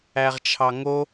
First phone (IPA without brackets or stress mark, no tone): æ